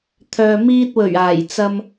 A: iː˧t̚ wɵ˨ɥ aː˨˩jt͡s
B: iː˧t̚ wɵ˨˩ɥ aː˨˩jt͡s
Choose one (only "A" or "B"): B